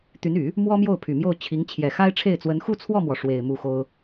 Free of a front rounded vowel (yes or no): no